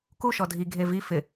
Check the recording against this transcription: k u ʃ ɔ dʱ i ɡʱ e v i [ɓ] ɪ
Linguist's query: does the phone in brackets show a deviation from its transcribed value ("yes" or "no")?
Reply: yes